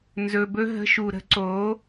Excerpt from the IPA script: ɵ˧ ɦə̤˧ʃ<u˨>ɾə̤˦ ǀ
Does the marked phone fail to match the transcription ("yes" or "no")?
no